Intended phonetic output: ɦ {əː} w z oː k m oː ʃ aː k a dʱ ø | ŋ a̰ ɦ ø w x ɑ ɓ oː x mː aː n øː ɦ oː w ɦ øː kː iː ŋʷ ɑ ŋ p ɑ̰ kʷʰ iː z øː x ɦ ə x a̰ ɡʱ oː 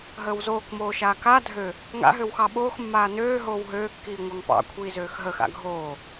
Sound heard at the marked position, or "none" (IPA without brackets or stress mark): əː